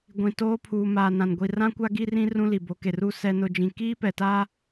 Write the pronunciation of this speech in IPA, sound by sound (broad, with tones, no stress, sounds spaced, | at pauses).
ɡʷ ĩ˨ t oː˦ pʰ uː˨ m aː˨ n ã˨ n ɡʷ i˨ r ã˦ kʷ a˦ ɡ i˦ r ĩ˦ r ũ˦ l i˨ b o˨˦ k e˨ r u˦ s ɛ˦ n ʊ˦ d͡ʒ ĩ˦ k iː˦ p ɛ˨ t aː˦